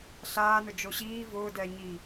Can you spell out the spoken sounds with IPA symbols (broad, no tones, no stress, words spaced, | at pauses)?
ɬaːnʊ d͡ʒoɕiː vʊːdɛːɲi